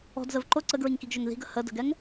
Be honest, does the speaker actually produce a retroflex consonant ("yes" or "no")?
no